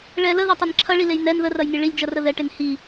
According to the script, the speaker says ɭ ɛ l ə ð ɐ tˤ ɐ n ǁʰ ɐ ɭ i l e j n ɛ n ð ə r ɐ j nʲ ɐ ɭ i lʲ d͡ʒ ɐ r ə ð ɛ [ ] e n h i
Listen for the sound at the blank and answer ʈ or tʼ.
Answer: ʈ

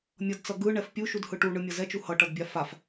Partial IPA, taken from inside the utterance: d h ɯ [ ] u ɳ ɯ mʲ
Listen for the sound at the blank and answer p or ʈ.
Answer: ʈ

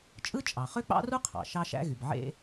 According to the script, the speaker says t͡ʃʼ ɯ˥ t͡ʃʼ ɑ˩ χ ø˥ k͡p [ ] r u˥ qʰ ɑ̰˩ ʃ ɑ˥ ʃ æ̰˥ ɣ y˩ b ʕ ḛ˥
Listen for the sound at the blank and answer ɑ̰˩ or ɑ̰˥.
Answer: ɑ̰˥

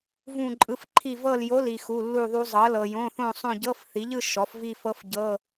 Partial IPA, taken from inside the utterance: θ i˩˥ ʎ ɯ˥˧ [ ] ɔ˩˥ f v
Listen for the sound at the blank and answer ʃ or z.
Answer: ʃ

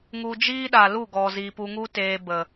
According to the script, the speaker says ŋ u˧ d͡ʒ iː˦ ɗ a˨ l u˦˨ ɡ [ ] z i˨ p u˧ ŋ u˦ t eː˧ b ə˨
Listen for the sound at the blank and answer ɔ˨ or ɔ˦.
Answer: ɔ˨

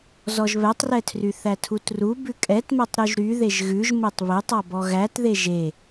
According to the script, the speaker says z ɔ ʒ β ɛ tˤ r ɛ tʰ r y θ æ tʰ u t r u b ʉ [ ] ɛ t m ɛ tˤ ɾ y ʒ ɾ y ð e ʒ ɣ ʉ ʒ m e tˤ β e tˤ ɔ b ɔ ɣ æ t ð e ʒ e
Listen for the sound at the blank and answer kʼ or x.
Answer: kʼ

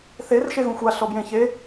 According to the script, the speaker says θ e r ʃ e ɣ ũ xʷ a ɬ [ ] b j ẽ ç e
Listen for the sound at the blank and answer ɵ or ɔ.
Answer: ɔ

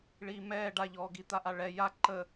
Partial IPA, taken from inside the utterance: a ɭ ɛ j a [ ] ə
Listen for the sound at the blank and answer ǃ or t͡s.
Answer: ǃ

